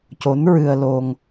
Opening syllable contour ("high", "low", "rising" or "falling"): rising